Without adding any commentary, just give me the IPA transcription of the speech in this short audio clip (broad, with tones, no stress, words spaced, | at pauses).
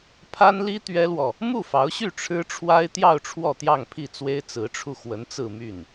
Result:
pʰa˥nli˥ t̪ɥɛ˥lwɔ˨ | mu˥˩fɑ˧˥ʊ̯ɕy˥˩ ʈ͡ʂʰɻ̩˥ʈ͡ʂʰwa˥ɪ̯t̪jɑ˥˧ʊ̯ ʈ͡ʂʰwɔ˥˧t̪jɑ˥˧ŋpʰi˥˩t͡swe˥ɪ̯ t͡sɹ̩˧˥ʈ͡ʂʰu˧xwə˧˥n t͡sɹ̩˥˧my˥˩n